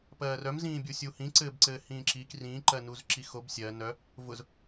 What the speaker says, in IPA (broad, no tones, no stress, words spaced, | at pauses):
pɜːrœmzĩː bʲusʲuhĩ ǀɘːbǀɘːhĩːǁik rĩǃɜ nuzǁixob sʲɜ nœ | vʊz